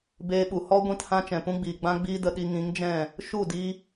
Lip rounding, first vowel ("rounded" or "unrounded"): unrounded